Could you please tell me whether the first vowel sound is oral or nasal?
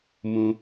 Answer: nasal